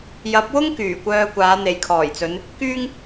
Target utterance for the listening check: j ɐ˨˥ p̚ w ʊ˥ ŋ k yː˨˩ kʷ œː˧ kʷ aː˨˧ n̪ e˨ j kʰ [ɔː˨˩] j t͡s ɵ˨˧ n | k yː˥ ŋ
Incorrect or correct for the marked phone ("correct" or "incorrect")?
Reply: correct